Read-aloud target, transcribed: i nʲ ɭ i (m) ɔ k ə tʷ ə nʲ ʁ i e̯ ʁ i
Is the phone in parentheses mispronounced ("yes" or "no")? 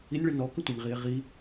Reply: yes